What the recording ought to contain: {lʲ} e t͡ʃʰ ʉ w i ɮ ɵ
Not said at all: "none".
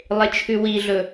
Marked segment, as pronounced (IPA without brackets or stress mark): lˠ